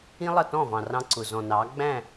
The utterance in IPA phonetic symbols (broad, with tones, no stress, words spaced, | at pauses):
ĩ˦lˠʌ˦˨tɔ̃˦˨vɑ̃˨ rɑ̃˧ǀʊ˨ zɔ̃˨nɑ˨˦ ɡ͡bæ̃˦˨